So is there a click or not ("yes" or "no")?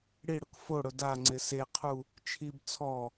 yes